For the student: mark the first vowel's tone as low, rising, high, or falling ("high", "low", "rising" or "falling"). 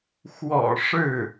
low